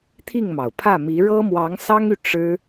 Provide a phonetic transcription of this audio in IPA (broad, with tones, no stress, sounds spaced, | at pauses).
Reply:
t̪ʰ i˥˩ ŋ m ɑ˩ ʊ̯ pʰ ä˥˩ m i˧˥ ɻ ɤ˥ m w ɑ˧˥ ŋ s ɑ˥ ŋ y˨ ʈ͡ʂ ɻ̩˥